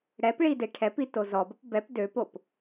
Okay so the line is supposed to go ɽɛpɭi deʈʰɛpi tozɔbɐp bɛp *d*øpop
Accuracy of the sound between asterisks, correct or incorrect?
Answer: correct